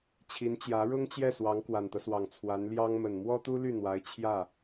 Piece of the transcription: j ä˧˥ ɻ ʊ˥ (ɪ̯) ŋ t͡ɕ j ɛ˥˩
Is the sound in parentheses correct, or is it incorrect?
incorrect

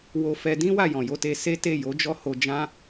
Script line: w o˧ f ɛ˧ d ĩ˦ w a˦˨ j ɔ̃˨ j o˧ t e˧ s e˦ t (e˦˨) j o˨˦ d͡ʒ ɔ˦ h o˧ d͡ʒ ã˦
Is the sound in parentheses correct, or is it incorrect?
correct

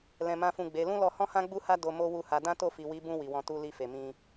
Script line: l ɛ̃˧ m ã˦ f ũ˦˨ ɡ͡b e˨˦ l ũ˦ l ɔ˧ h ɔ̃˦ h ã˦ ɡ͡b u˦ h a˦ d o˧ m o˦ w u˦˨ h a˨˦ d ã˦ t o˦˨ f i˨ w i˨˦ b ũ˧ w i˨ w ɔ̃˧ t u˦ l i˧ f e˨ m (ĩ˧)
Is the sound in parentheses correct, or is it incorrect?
correct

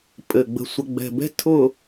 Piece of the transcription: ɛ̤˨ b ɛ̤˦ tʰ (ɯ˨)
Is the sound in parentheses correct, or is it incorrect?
incorrect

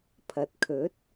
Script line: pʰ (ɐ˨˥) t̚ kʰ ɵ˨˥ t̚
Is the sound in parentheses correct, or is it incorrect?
incorrect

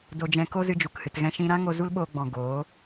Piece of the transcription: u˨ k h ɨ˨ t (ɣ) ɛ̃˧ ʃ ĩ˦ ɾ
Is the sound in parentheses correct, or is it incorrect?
correct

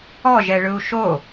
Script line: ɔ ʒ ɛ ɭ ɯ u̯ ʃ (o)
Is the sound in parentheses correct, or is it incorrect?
correct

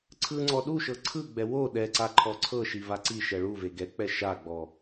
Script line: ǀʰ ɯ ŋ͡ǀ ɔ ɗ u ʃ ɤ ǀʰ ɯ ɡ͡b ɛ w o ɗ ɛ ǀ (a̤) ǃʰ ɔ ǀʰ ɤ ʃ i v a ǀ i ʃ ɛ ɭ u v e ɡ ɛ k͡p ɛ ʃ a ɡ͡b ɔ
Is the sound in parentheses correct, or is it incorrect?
incorrect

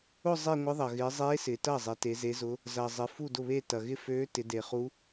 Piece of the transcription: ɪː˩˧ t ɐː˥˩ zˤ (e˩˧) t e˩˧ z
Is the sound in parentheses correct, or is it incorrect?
correct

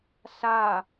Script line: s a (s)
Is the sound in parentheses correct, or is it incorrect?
incorrect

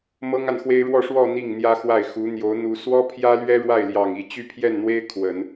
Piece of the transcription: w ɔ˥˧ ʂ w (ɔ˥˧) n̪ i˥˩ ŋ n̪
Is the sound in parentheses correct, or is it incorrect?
correct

